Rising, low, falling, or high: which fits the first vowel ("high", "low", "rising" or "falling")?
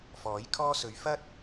rising